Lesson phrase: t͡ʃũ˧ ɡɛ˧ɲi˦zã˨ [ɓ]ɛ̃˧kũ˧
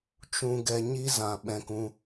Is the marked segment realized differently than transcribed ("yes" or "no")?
no